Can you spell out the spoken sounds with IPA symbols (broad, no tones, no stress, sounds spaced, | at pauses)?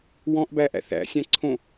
w ɔ̃ ʔ b æ ʔ æ̰ θ æ̰ sʲ æ̃ ǀʰ õ